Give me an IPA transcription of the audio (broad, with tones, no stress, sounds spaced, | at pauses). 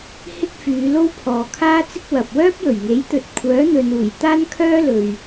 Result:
h ɪ˥ k̚ f yː˨˧ l o˥ w pʰ ɔː˨ kʰ aː˥ t͡s ɪ˥ k̚ w ɐ˨ p̚ w œː˥ p̚ j ɵ˨˩ ɥ ŋ e˨˥ j t̪ ɵ˨ t̚ kʷʰ œː˨˥ n̪ ɵ˨ n uː˨˩ j t̪ aː˥ n kʰ œː˥ l ɵ˨ ɥ